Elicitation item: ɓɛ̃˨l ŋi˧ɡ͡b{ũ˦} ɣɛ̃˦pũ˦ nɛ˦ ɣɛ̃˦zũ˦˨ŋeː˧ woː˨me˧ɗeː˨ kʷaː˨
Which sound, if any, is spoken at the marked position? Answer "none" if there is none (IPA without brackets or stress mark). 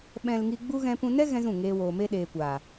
u˦